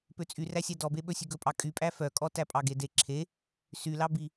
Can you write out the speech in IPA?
p ø t͡sʼ y r æ sʲ æ d ɔ b e ɓ ɵ sʲ ʉ ɡ ɵ pʼ ɑ kʼ y pʼ æ f œ kʼ ɔ t æ pʼ ɑ ɡ e d e ǁʰ e | s y l ɑ b i

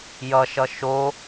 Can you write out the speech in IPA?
j ʌ ʃ ʌ ʃ o

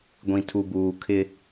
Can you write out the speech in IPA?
ɡʷ ĩ˨ tʰ u˨ b uː˨ kʰ ɪ˦

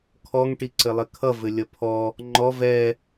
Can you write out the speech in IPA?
kʰ ɔ ŋ ʈ i ǀ ɘ lˠ ɘ kʰ ʌ v ɘ lʲ ʌ pʰ ɔ | ŋ͡ǃ ɔ v ɛ

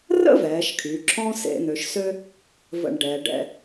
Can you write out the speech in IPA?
r ə̰˥ v ɛː˩˧ ʃ kʰ y˩˧ ǁʰ ɔ̃˥ s ḛ˧ n̪ ø˩˧ ʃ s ø˥ | v ə̰˧˩ ɳ ɖ ɛː˩˧ ɖ ɛ̰˥˧

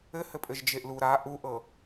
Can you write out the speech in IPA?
ɘ h ɘ pʼ ɘ ʒ d͡ʒ e ʔ l u ɾ a ʔ u ʔ ɤ

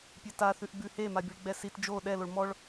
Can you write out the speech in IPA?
pʲ e t a θ ʉ ʔ ɡ͡b ʉ h e m a bʲ ʉ ɭ ɡ͡b ɛ s i t d͡ʒ o ɗ ɛ l o ɭ m ɔ ɭ

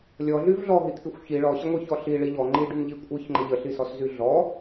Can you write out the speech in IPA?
lʲ ɔ ɮ y v ɮ ɔ ɦ i t̪ʰ i xʷ ç i ɭ ɔ ɕ ə ŋʷ i ç ɔ ɬ i ɭ i ʎ ɔ ŋ͡ǃ i ɖ y n ʎ i kʷʼ i ç ŋ͡ǃ ə ʎ ə ɬ i s ɔ s z y ɮ ɔ

